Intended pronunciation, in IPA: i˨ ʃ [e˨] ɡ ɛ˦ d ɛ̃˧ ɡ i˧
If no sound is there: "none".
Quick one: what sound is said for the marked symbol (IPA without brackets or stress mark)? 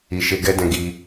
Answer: e˧